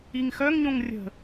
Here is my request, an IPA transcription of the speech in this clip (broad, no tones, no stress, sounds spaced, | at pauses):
i ŋ x œ ŋ ɲ õ ŋ rʲ ə̤